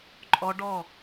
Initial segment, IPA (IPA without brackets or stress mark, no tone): ǃʼ